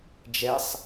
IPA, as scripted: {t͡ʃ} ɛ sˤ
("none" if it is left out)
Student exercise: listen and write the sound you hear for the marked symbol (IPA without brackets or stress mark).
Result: d͡ʒ